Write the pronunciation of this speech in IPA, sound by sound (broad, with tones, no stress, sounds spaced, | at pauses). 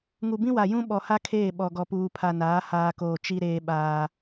ŋ u˨ b ĩ˦ w a˨ j ũ˦ ɓ ɔ˨ h a˦ kʰ eː˦˨ ɓ ɔ˨ ɡ ɔ˨ p uː˨ pʰ a˨ n aː˨˦ h aː˨ k oː˨ t͡ʃ i˦ ɾ eː˦ ɓ aː˦